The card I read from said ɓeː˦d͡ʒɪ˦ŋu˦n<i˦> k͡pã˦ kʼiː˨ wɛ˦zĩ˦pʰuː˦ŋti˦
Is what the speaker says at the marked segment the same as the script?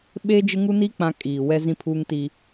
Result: yes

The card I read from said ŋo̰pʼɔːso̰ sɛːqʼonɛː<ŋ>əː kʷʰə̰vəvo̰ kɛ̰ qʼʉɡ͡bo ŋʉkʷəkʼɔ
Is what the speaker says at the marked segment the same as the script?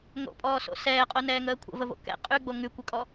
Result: yes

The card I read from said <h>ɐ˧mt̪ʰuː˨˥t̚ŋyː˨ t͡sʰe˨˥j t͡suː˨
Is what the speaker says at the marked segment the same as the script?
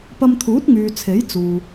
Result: no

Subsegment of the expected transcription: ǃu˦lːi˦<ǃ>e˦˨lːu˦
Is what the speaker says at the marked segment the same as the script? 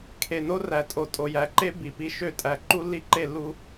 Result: yes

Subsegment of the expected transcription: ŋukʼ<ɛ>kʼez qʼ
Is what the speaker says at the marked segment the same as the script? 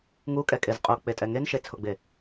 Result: yes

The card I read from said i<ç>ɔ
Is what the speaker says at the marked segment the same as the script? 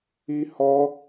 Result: no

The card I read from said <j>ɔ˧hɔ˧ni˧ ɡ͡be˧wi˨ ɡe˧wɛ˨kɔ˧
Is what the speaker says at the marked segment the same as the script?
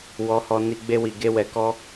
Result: no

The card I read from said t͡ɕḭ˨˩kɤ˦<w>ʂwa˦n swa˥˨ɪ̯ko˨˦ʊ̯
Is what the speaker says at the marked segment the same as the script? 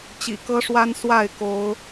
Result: no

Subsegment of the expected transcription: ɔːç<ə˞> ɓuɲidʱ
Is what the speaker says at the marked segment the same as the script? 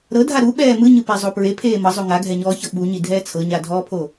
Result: no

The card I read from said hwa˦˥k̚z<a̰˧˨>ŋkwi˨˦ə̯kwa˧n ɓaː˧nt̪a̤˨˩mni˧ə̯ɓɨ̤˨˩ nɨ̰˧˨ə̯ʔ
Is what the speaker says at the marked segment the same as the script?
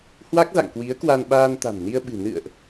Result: yes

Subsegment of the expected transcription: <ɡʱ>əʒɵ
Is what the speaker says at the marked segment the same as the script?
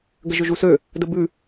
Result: no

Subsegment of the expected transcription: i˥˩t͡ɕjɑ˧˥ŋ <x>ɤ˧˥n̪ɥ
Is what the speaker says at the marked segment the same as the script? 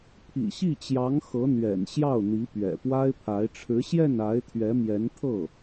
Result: yes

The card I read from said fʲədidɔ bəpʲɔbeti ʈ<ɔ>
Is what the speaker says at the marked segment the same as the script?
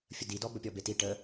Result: no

